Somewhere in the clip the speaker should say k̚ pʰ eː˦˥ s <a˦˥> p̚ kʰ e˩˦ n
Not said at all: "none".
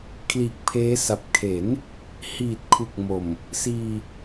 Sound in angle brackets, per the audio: a˨˩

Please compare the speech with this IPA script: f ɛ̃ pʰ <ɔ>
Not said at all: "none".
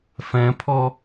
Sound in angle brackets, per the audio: ɔ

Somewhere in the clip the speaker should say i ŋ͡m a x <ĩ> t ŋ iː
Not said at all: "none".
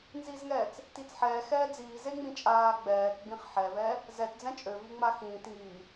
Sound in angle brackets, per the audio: ĩː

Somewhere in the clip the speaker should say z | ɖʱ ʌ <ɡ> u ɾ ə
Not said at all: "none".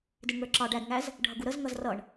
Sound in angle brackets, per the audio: ɡ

